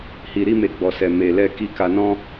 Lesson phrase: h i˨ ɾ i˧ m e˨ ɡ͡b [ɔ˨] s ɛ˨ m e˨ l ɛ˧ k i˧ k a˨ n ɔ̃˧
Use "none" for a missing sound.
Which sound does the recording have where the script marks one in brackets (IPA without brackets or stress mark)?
ɔ˨